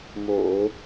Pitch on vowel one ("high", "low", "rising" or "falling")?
low